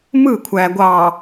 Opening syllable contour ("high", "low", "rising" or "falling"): falling